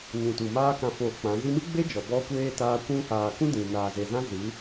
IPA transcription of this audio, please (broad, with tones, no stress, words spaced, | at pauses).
ɲũ˨tu˨maː˦kã˧ foː˧k͡pã˨˦ zi˧mɨ˦ɡ͡be˦ d͡ʒɔ˨bɔ˦kʷeː˦taː˦ kʷũ˧haː˨kũ˦ dĩ˨ naː˨ze˨zã˦ zɨ˨˦